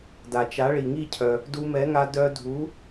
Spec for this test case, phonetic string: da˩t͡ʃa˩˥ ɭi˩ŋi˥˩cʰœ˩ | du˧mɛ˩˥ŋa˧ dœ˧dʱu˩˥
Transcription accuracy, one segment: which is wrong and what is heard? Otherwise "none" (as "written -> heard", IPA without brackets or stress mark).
none